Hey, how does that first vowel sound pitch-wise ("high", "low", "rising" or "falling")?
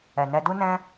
low